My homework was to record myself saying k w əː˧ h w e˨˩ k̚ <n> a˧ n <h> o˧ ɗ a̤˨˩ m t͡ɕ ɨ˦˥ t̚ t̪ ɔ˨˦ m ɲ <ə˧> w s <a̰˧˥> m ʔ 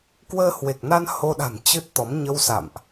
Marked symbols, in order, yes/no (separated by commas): yes, yes, yes, no